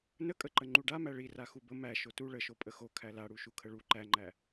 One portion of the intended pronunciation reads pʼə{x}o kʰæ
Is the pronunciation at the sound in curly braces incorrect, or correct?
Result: correct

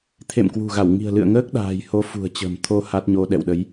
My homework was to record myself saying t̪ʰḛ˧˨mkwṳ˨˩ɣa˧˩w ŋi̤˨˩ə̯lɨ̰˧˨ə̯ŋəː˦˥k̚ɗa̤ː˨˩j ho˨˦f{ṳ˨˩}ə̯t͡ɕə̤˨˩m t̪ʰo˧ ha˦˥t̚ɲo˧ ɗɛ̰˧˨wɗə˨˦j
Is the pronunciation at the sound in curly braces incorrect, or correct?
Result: correct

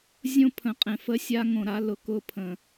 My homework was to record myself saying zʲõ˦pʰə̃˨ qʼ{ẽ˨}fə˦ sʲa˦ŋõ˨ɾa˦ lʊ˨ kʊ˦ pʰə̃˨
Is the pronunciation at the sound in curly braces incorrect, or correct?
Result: correct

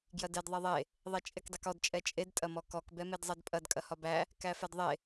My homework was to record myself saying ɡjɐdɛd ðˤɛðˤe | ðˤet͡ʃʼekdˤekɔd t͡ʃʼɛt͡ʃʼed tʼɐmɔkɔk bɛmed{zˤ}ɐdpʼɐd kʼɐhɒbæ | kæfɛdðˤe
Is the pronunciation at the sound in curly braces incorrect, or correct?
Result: correct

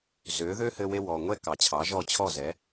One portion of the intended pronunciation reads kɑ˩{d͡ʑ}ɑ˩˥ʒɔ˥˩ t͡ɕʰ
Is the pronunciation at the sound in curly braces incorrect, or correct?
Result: incorrect: t͡ɕʰ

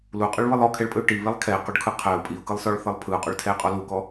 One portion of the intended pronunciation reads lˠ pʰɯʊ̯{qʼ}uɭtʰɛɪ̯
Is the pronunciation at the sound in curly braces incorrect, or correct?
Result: correct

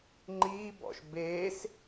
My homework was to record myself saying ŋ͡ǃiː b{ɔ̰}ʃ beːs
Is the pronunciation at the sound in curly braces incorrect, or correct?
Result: correct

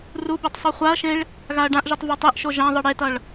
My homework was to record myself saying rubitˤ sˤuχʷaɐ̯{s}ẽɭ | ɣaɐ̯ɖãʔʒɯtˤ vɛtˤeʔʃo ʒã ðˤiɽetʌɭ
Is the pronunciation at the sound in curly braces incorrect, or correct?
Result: incorrect: ʃ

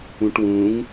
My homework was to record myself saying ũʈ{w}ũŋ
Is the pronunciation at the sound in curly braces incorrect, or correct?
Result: correct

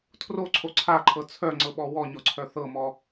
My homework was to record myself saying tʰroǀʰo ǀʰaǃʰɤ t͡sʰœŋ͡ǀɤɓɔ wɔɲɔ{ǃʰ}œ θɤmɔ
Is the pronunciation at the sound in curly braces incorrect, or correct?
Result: incorrect: ǀʰ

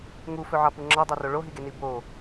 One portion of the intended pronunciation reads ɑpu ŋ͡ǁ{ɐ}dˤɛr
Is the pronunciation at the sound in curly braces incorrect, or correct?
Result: incorrect: ɑ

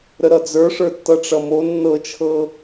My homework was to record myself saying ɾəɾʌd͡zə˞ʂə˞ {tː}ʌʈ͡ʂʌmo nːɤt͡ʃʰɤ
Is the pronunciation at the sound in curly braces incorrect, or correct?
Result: correct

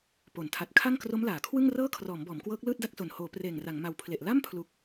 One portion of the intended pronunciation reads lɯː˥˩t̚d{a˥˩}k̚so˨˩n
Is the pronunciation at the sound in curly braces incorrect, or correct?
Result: correct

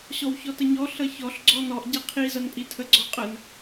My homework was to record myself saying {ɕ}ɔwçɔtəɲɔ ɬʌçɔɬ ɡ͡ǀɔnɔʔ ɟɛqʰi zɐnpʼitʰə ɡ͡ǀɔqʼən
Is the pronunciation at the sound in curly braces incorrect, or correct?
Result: correct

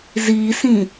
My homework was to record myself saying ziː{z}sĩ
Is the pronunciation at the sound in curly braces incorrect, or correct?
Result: incorrect: none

